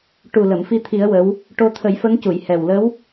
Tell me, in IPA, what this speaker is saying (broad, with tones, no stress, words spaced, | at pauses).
ʈu˨˩ lə˨˩˨mfi˧t̪ʰi˨˩˦ə̯ wə˧˥w | ʈo˧t̪ʰə˨˩˦jfə˧˥ŋcu˨˩˨j hɛ˨˩wlə˧˥w